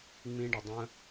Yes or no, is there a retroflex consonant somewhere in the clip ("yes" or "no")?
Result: yes